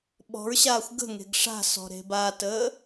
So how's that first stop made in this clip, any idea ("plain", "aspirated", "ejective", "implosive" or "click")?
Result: implosive